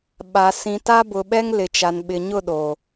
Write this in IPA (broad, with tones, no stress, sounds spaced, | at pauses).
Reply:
ɓ a˨ s ĩ˨ t a˦ b ʊ˨ ɓ ɛ˦ ŋ l ɪ˨ t͡ʃ a˨ n ɓ ɪ˨ ɲ ʊ˦˨ ɗ o˨